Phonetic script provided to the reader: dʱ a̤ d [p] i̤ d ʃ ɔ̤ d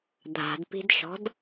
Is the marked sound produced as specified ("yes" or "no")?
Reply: yes